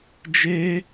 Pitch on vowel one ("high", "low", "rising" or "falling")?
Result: high